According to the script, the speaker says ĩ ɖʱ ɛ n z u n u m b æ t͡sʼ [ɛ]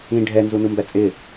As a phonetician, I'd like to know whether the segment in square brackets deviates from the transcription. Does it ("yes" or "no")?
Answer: yes